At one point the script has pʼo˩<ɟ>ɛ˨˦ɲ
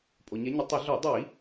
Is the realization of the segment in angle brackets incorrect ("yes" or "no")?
yes